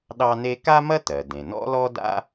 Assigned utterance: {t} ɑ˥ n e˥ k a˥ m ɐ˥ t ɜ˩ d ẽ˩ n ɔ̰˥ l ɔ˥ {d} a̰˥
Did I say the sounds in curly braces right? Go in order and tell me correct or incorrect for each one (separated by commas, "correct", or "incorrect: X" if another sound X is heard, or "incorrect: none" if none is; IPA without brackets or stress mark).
incorrect: ɗ, correct